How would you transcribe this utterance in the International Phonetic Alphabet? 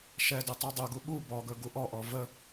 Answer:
ʃ ɛ d ɵ tˤ u dˤ ɵ ɡ u ɓ u b ɔ ɡ ɵ ɡ u ʔ ɔ ʔ ɔ v ə

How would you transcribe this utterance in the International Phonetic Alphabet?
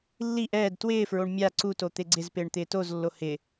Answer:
lː i ʔ ɛː d t w ɪː f ɹ o ɳ mʲ a ǀ u t o t̪ e ɡ͡ǀ ɪ z p ɪː ɳ t̪ ɪː t o z lː o h ɪ

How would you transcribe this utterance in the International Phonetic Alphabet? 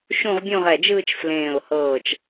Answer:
ʃ ũ˥˧ ʁ bʲ õ˥˧ ʁ ɛ˧˩ d͡ʒ ɯː˥˧ t͡ʃ f l ẽː˧˩ ʊ̯ h ɤː˧˩ t͡ʃ

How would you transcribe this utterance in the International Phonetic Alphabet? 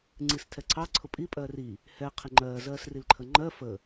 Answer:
ŋ͡ǀ i s tʰ ɛ ǀʰ ɑ ǀʰ ʊ pʼ i pʼ ɜː r i | h ɛ qʰ ɪ ŋ͡ǃ ɜː z ɜː s r i l ǃʰ ə ŋ͡ǃ ɜ f ə

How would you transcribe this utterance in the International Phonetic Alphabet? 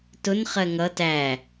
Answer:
t ʊ n χ ɜ ŋ ʌ t æ

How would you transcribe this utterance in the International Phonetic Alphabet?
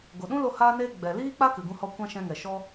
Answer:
ɡ o˨ ɗ ũ˦ l o˧ h aː˦ n eː˦ ɡ͡b ɛ˨ l iː˦ k͡p a˦ k ɨ˨ ɡ ũ˧ h ɔ˧ kʷ ã˦ ʃ ɛ̃˧ ŋ ɛ˨ ʃ ɔ˧

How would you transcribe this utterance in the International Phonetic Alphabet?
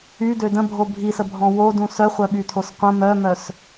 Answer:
y d ø d ə̃ bʱ o bʱ i s ə bʱ ɔ̃ w o d ũ s œ χʷ œ ɓ y tʰ o s qʷ ə̃ m œ m œ s

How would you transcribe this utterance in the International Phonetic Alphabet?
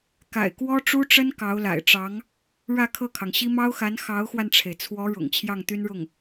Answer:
k a̰˨˩ ɪ̯ k w ɔ˥ ʈ͡ʂ u˥ ʈ͡ʂ ə˥ n k ɑ˧˥ ʊ̯ l a̰˨˩ ɪ̯ ʈ͡ʂ ɑ˧˥ ŋ | ɻ ä˥˧ kʰ ɤ˥˩ kʰ ɑ˩ ŋ ɕ i˥ m ɑ˥ ʊ̯ x a˧˥ n x ɑ˧˥ ʊ̯ x w a˧ n ʈ͡ʂʰ e˩ ɪ̯ t͡sʰ w ɔ˧˥ ɻ ʊ̰˨˩ ŋ t͡ɕʰ j ɑ˥˩ ŋ t̪ y˥ n ɻ ʊ˥˩ ŋ

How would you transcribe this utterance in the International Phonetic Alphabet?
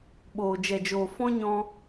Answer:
ɓ oː˨ d͡ʒ ɛ˨ d͡ʒ oː˨ f ɔ̃˦ ɲ ɔ̃˧

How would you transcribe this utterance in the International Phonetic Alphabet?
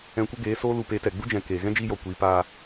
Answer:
ɛ̃˧ kʷ ə˦ ɡ eː˨˦ s oː˦ l u˧ p e˨˦ t ɛ˨ ɡ͡b u˦ d͡ʒ ɛ̃˨ k eː˨ ɣ ɛ̃˦ d͡ʒ iː˧ j ɔ˨ kʷ iː˨˦ p aː˧

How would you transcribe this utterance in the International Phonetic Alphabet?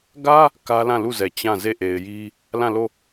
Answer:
ɡ ä˦ | k ä˦ l ã˦˨ l u˦˨ z ɛ˨ t͡ɕ ã˦˨ z e˦˨ ʔ e˨ ɪ̯ j i˦ | l ã˦˨ l o˦˨

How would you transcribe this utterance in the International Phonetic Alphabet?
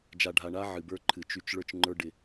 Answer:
d͡ʒ a˨ ɖʱ a˨ ɳ a˦ ʕ ɨ˨ b ə˞˦ ǃʰ ɨ˨ t͡ʃ y˦ t͡ʃ ɭ ə˞˦ t͡ʃ ŋ͡ǃ ə˞˦ ɖ ɪ˦

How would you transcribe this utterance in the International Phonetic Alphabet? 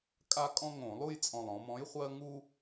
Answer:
kʼ a˦ kʼ ɔ̃˦ ŋ õ˧˩˧ lˠ u˦˨ j t͡sʼ ɔ̃˨˩ lˠ ɔ̃˩˧ m ɔ̃˨˥ j χʷ ɜ˦ ŋ u˦

